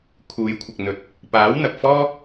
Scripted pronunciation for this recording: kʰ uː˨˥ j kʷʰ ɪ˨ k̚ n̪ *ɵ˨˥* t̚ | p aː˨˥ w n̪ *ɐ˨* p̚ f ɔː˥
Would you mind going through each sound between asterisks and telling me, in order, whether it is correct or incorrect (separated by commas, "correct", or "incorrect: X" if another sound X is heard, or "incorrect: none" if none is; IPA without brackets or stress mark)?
correct, correct